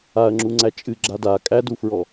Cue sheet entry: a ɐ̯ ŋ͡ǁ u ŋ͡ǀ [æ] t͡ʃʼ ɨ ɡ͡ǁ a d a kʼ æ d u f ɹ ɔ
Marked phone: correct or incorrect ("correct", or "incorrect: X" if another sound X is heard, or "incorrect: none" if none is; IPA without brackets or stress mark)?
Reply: correct